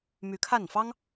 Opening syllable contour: rising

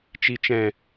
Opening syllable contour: low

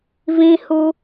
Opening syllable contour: high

